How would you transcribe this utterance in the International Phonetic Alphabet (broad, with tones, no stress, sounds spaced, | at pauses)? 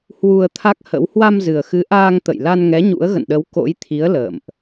h w u˧ ə̯ t̪ʰ a˦˥ k̚ h ə̰˧˥ w h w a˧ m z ɨ˨˩ ə̯ x ɨ˨˦ ʔ aː˧ ŋ t̪ ə̰˧˨ j l a˧ n ŋ ɛ˨˦ ɲ ṵ˧˥ ə̯ ɣ ə̰˧˨ n ɗ ə˨˦ w k o̰˧˥ j t̪ʰ i˨˦ ə̯ l ə̰ː˧˨ m ʔ